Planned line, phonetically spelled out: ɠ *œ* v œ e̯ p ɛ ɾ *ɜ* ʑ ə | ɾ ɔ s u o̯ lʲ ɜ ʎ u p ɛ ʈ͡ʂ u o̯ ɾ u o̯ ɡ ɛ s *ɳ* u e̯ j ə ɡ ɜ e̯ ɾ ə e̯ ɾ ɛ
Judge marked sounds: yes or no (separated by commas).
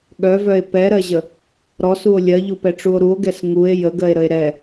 yes, yes, no